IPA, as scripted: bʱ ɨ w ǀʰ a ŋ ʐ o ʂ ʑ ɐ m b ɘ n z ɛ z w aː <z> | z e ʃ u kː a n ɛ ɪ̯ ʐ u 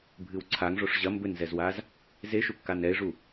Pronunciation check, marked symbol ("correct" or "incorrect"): correct